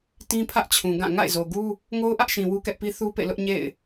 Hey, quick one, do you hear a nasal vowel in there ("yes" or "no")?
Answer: yes